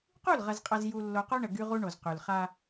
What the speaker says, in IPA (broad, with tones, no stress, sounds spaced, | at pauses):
q u˦˨ l ʁ ɐ˨ z qʼ ɐ˨ z j u˨ lː o˨ q o˦ ɳ ə˨ ɡ y˦ ʁ u˦ ɳ o˨ z q y˨ l χ a˦